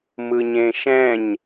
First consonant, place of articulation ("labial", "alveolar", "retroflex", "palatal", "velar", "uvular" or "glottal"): labial